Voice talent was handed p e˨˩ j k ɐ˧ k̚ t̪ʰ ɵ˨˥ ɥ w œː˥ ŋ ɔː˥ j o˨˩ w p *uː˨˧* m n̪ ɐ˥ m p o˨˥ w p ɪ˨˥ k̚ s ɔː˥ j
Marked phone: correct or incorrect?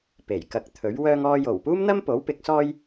incorrect